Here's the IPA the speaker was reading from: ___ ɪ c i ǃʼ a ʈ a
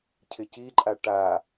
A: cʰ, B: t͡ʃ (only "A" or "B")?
A